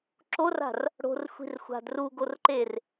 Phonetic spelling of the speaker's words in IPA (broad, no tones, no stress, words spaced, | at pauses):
ǁora̤r | ɽo̤rxʷi̤rxʷa̤ druɡorǃer